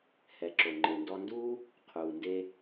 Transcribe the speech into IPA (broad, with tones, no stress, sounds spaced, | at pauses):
h ɛ˩ ǁ o˩ ŋ͡ǃ e˩ n d ɔ˧ n d uː˥ | qʰ uː˩ n d e˧